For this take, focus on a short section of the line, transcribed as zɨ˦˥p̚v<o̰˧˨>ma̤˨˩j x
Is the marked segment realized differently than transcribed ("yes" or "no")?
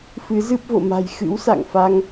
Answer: no